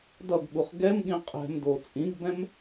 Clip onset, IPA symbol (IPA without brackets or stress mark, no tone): d